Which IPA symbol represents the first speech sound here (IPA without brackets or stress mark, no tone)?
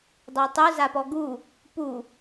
dˤ